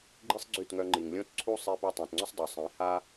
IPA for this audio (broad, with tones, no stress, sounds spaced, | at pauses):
ɡ͡ǃ i˦ sˤ ɡ͡ǀ y˦˨ t ŋ œ˧ ŋ͡ǃ i˨ ŋ lʲ õ˦ t ǀʰ u˦ sˤ i˧ p œ˧ tˤ ɛ̃˨ t ŋ͡ǀ ʊ˦ sˤ dˤ ø˨ sˤ ĩ˨˦ h a˦